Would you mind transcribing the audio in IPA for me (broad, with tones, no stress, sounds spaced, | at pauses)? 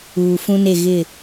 uː˨ f ũ˦ n e˦˨ ɣ ɪ˦˨